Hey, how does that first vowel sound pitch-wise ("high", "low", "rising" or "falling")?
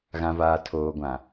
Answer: low